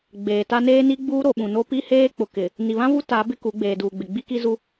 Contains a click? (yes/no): no